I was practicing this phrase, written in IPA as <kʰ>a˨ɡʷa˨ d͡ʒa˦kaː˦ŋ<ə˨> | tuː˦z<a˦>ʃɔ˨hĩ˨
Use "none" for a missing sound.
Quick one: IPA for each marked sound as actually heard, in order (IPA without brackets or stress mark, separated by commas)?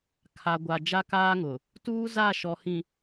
kʰ, ʊ˨, a˦˨